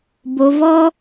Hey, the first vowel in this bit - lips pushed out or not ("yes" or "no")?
yes